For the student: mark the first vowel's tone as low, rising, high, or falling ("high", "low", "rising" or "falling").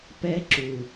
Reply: high